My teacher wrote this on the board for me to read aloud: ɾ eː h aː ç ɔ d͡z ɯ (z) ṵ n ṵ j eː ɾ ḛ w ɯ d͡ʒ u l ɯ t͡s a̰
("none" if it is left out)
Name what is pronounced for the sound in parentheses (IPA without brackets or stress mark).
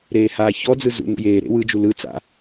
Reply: z